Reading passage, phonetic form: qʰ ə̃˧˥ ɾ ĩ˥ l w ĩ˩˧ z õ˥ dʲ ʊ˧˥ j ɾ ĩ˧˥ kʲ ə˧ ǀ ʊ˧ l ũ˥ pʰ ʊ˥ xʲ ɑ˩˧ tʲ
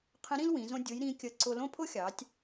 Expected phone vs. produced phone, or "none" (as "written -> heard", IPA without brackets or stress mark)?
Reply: ũ˥ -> õ˥